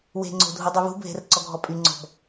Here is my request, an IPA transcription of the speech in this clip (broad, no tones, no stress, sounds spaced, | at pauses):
w e̤ ŋ͡ǀ o̤ dʱ u dˤ y β ṳ bʱ e̤ r ǀ ɔ ɡʱ ɔ pʼ y ŋ͡ǀ ɔ̤ b